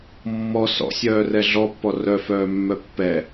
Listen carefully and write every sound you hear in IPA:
mːɔ sɔ̰sʲœːrɛ ɮɔpːɔ rœfœːmːœ pːɛ

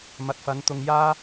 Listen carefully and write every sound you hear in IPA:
mɐ˨t̚fɐ˨˧n t̪ʊ˧ŋjaː˥

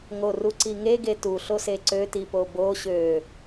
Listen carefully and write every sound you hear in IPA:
ŋo ruǀiŋe ɡetu ɬoseǀø tipobo ɕø

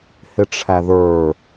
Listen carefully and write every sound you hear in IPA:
hɪʈ͡ʂʰæðə˞

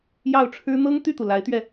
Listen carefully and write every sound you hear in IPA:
jɑ˥˩ʊ̯ʈ͡ʂʰɻ̩˥ n̪ɤ˥ŋ t̪y˥˩t̪u˩ la˧˥ɪ̯t̪ɥɛ˧

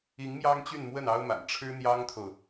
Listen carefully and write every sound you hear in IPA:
i˧˥ŋ mjɑ˥ŋt͡ɕy˥˧nmwə˥˩n ɑ˥ʊ̯ma̰˨˩n ʈ͡ʂʰɻ̩˥n̪jɑ˥ŋt̪ʰo˨ʊ̯

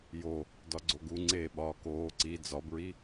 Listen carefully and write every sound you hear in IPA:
jo | dɒɡ͡ǀoɡuŋ͡ǀeː ɓɒːkoː ǀi d͡zɒbɹi

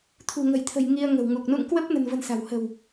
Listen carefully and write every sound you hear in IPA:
t̪ʰṳ˨˩ŋə̤˨˩jt̪ʰə̤˨˩j ŋi˧ə̯ŋə̤˨˩wŋu˨˩k̚ nṵ˧˨ŋkwə˦˥p̚nə̤˨˩nvə̤˨˩n sa̤˨˩w hə̤˨˩w

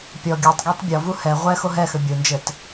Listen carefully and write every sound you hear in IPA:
pʲɔ ɡʲutˤɡetˤ bʲɔvu hɛ ʁʷɛ xoɦɛxɘ bʲond͡ʒɘt

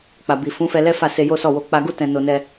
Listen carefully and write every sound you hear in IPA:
k͡pa˨bi˨ fũ˨˦fɛ˧ lɛ˦fa˦˨se˧ jo˦sɔ˦˨wo˧ k͡pa˧ɡu˦ tɛ̃˧ no˧nɛ˧

